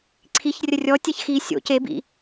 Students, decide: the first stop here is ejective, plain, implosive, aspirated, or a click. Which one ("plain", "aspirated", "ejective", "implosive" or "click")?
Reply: click